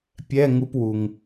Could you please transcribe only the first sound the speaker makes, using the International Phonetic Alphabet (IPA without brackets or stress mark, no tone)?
pʲ